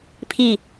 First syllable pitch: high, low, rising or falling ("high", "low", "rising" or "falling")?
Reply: falling